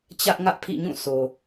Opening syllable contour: high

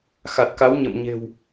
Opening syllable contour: low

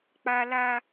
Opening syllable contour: high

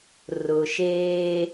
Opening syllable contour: low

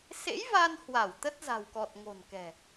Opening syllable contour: rising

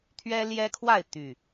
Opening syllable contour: high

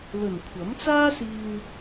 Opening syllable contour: low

